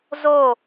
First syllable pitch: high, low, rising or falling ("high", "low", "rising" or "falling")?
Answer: falling